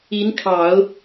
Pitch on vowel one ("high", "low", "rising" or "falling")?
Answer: rising